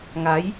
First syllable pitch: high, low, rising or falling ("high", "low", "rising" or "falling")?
rising